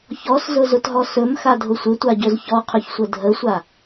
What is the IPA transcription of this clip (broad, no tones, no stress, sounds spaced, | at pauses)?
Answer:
ç ɔ s z ʊ z ʊ t ɦ ɔ s ɵ m x a dʱ ʊ sʷ ɪ tʷ a ɟ ɵ z ç ɔ qʰ ɵ ç sʷ ə dʱ ə sʷ a